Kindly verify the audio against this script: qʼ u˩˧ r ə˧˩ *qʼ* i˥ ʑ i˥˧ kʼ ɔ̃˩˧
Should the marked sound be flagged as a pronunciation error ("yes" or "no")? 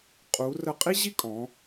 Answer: no